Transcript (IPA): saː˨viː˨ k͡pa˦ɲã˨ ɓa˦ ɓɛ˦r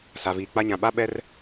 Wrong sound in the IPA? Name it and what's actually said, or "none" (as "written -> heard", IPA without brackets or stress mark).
aː˨ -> a˨